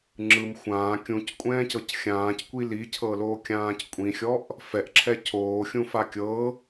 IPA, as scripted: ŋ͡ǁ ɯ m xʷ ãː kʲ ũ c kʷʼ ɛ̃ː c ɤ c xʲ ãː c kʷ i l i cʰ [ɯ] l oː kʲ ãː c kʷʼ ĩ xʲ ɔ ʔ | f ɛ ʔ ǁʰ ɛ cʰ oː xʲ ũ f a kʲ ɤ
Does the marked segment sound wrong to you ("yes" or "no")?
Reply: yes